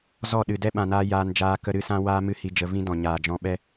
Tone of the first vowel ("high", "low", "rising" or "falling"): falling